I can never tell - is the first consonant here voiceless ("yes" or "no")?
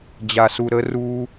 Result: no